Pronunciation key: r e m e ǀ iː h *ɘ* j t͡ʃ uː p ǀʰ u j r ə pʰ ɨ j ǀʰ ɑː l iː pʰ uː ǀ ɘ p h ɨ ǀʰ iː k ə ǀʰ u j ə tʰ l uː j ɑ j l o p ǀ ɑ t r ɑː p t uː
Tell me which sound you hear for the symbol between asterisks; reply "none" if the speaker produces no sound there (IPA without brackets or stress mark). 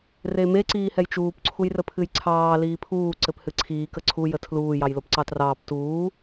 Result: ɛ